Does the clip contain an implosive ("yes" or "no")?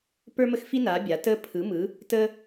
no